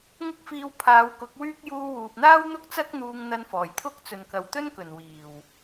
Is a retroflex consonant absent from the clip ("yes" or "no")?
yes